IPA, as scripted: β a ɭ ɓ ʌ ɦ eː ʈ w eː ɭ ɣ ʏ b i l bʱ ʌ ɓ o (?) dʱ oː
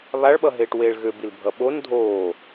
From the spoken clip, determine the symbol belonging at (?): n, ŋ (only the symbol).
n